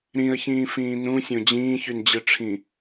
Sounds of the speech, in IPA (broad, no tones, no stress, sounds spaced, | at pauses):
ɾ ĩ ə̯ ç ĩː f ĩː n ũ sʲ õ d͡ʑ ĩː ç y n d͡ʑ ɯ ʈ͡ʂʰ ĩ